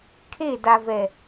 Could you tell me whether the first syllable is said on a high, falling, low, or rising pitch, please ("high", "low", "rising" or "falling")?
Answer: falling